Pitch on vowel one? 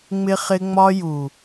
high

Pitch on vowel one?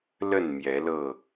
falling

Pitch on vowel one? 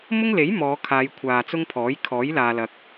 high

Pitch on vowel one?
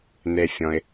low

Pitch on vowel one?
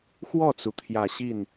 falling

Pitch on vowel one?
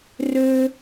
high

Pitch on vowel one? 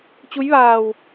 rising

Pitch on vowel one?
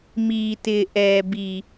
low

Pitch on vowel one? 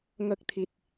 low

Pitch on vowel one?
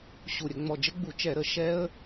low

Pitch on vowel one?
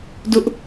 high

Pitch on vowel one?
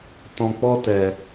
low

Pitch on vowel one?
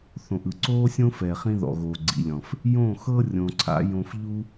low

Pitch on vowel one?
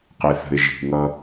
low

